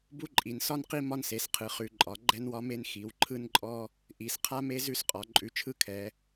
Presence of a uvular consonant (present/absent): present